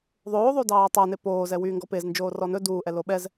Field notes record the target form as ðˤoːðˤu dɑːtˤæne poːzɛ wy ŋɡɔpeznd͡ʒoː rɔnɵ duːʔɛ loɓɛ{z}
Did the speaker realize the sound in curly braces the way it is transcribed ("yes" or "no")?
yes